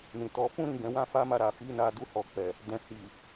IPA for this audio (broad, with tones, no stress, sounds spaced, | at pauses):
n ĩ˨ t ɔ˨˦ f ũ˦ ɾ ĩ˦˨ ɡ ɛ̃˨˦ w ã˦ f a˦ m a˧ ɾ a˨ f i˨˦ n a˧ d u˧ h ɔ˨ k͡p ɛ˨ | d ɛ̃˨ h i˨